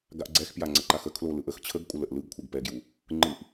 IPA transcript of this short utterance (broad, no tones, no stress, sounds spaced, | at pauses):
ɡ a ʔ ɡ͡ǀ ɛ x p j a ŋ͡ǀ ə ǃ a x ə kʰ l o l ɯ ʔ ə x t͡ɕʰ ə ɡ kʷʼ ə l ə ʔ l ɯ ɡ kʷʰ ɛ ɡ p ɛ ɡ j u | ŋ͡ǃ ɯ ʔ